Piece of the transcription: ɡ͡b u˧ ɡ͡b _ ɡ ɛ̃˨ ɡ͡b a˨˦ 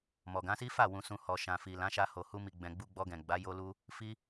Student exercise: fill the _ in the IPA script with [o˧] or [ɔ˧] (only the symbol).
ɔ˧